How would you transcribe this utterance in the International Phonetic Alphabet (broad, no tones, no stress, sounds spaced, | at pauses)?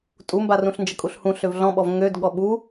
tʼ u m b a r ũ ɬ n d͡ʒ ə kʼ u ɬ h ũ ɬ ø v ɮ ɔ̃ ɓ ɔ v ŋ ø d ɠ ɔ ɓ u